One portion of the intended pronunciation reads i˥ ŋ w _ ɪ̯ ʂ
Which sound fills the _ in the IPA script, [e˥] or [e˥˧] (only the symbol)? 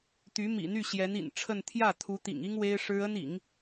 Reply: e˥